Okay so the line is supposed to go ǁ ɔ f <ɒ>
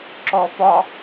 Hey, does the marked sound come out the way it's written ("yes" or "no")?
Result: yes